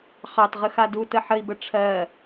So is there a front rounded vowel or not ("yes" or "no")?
no